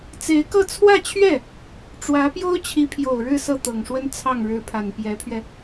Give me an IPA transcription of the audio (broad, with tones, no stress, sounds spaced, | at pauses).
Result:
t͡s e˧˥ ɪ̯ k ɤ˥˧ t͡sʰ w ä˥˧ t͡ɕʰ ɥ ɛ˥˩ | ʈ͡ʂ w ä˧˥ p j o˥ ʊ̯ t͡ɕʰ i˧˥ pʰ j o˨˩ ʊ̯ ɻ ɻ̩˥˧ s ɤ˥˩ t̪ ɤ˨˩ ŋ ʂ w ə˥ n t͡sʰ ɑ˥˩ ŋ ɻ ɻ̩˧˥ pʰ a˨˩ n p j ɛ˧˥ pʰ ɥ ɛ˧